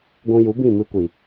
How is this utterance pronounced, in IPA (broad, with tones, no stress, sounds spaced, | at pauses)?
ɡʷ ũ˧ j u˨˦ b ĩ˦˨ m ɨ˧ kʷ i˨